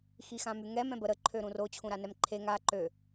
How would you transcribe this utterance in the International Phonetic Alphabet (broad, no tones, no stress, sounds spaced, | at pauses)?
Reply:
x i x ã m y ŋ ɛ m ɛ̃ b ə ɾ ə ǃʰ ø ɾ ũ r o t͡ɕʰ ũ ɾ a n ɛ m ǃʰ e ŋ a ǃ ø